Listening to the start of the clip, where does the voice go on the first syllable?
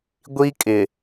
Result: high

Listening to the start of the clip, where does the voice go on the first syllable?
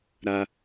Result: high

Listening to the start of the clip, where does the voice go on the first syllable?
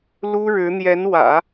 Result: high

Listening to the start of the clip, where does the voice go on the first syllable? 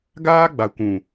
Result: high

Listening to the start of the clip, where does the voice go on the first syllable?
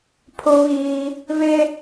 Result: high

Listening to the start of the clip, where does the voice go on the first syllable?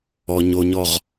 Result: low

